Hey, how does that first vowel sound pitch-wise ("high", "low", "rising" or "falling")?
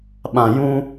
low